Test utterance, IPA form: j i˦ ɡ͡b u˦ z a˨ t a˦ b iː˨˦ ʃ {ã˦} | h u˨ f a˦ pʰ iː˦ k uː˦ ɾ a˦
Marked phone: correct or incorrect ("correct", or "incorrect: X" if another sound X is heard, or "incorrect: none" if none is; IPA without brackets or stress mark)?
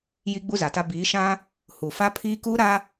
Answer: correct